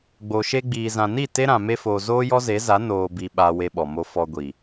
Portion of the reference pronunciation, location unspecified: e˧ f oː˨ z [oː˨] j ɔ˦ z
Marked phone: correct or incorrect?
incorrect